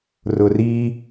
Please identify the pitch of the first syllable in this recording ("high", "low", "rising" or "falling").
low